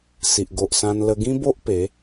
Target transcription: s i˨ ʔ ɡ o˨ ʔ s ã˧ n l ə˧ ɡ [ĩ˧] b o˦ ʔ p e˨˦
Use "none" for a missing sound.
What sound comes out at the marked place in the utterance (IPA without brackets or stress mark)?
ĩ˦